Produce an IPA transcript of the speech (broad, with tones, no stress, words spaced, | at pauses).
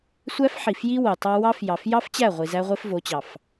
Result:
sʷæ˦fħi˨fji˦ wo˨tˤɑ˦ wɑ˦fjɑ˨f jɑ˦f t͡ɕæ˦˨ʁʷi˨ zæ˦ʁʷe˦fvo˨˦t͡ɕɑ˨f